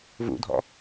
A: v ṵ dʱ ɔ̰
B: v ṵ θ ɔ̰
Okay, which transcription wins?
A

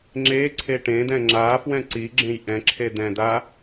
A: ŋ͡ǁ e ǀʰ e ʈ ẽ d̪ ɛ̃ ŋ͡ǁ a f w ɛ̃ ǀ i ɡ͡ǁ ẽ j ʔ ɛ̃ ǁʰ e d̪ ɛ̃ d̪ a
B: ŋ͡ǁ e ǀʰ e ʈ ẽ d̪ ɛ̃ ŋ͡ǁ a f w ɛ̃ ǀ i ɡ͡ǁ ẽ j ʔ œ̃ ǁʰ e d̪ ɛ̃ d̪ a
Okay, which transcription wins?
A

